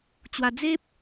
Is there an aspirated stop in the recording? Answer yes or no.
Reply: no